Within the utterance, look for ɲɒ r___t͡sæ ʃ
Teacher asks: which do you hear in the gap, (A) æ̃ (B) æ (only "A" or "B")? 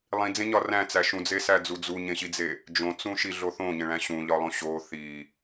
A